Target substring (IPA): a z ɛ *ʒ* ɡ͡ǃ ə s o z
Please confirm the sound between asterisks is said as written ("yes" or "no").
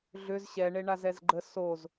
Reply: no